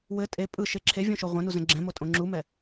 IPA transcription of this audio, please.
w ɘ tʼ e pʼ ɯ ʃ e ǁʰ e vʲ õ ʃ o ʁʷ ɛ̃ n u z ɛ̃ ɡ͡ǁ ɛ̃ m o tʼ õ ŋ͡ǁ u m ɛ

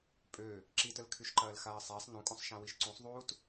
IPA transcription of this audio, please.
pʼ ø | ǁ i t ə l kʰ y ʃ ǃ ɐː l x aː sˤ æ sˤ n ũ kʼ ũ sˤ ʃ ã w i ʃ ǀ ũ sˤ ðˤ uː t

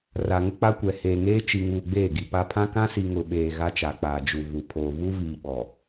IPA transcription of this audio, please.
r a˨ ŋ ʊ˦ k͡p a˦ kʷ ɛ˨ h eː˨ ŋ eː˦ t͡ʃ i˨ ŋ uː˨ ɡ͡b eː˦˨ ɡ i˨ p a˨ pʰ ã˦ k ã˦ s i˨ ŋ ʊ˨ ɓ eː˨ ɣ a˦ t͡ʃ a˨ k͡p aː˨ d͡ʒ u˨ v u˨ pʰ oː˨ v u˦ v iː˨ ɓ ɔ˨

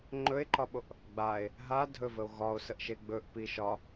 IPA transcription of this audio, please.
ŋ͡ǃ ɵ e̯ ǃ ɒ ɓ o ʔ | ɡ͡b a e̯ | ɦ a dʱ ɵ v ə o̯ ɣ ɒ o̯ s ə ʔ ʃ e ɡ͡b ɵ ʔ p i ʃ ɒ

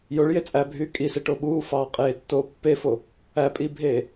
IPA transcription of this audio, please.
j o ɭ j e t͡sʼ æ bʱ yː kʼ i s e ʈ o ɓ uː f ɑː qʼ eː tː oː pː e f o | æ pʼ i bʱ eː

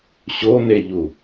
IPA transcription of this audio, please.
ɕ o n e ʎ u

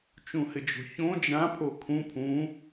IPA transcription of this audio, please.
t͡ʃ ũ h ɪ d͡ʒ o̤ ç õ d͡ʒ ã pʰ o kʰ ũ pʰ ũ

